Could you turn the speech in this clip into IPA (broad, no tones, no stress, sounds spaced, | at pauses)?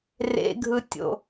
r ḛ ɡʱ ɯ tʲ o̰